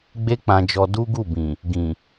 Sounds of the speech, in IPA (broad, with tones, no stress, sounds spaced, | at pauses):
ɡ͡b e˦ k͡p ã˧ d͡ʒ ɔ˧ d u˦ ɡ u˦˨ b ĩ˨ | ɡ ĩ˨